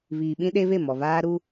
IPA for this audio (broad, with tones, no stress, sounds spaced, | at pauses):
β iː˨ ɓ ĩ˦ ɗ e˦ β e˦˨ m ɔ˨ β aː˦ ɾ u˦